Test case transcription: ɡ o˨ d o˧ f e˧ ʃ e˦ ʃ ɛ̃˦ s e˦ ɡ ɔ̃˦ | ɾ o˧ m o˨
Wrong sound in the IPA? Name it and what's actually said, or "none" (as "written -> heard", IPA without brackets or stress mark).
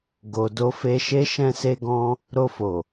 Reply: m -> f